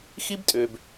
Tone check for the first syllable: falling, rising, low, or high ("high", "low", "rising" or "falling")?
high